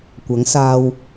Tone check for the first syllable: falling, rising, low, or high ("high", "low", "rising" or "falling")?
rising